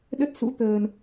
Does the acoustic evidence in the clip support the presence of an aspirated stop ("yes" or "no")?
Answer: no